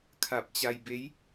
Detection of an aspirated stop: present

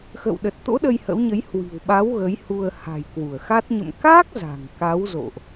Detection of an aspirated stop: absent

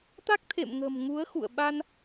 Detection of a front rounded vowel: absent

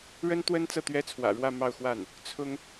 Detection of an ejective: absent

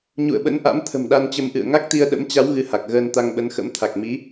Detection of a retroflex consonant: absent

